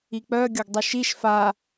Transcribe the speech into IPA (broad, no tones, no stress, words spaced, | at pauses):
ik͡pœ ɡʲoɡdˤuʃiʃ fa